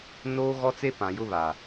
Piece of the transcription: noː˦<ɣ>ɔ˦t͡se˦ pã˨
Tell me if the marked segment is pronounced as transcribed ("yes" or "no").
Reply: yes